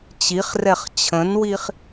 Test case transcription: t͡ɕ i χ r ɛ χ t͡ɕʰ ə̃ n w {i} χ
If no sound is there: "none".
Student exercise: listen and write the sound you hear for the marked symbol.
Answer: i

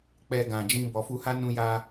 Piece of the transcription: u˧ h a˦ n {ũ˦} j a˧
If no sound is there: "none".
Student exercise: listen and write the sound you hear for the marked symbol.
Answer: ũ˧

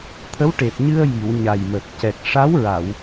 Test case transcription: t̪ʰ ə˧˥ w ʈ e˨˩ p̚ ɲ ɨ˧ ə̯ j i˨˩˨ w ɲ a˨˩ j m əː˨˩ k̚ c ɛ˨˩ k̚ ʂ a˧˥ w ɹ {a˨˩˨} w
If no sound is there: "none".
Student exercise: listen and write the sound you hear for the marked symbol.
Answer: a˨˩˨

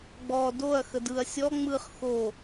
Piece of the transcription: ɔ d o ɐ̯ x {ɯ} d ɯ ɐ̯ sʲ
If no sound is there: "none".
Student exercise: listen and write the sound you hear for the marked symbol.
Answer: ə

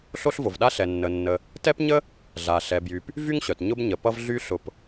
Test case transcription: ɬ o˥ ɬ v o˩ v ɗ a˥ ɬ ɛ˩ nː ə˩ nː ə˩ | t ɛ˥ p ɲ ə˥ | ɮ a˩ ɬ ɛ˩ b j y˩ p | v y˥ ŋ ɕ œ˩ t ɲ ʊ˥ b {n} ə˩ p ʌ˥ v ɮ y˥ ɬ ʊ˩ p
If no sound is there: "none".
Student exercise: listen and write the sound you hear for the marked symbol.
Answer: ɲ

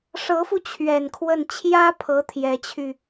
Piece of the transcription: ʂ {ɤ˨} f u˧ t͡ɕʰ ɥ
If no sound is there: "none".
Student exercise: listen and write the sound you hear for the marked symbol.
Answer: ɤ˧˥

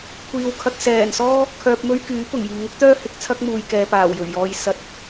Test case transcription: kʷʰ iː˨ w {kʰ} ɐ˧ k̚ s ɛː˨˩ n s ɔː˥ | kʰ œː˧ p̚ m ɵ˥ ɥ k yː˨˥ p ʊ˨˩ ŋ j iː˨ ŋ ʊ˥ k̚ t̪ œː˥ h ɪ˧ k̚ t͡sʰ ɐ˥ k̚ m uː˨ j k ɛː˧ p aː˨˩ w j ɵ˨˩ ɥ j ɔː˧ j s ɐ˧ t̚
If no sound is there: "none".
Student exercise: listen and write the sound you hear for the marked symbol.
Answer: kʰ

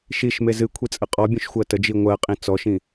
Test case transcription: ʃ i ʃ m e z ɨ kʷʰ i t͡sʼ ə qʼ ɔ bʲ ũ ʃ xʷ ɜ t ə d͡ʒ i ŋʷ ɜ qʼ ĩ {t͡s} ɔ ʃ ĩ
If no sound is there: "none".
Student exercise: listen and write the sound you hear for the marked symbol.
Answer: t͡s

